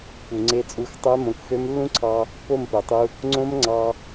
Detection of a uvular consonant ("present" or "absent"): absent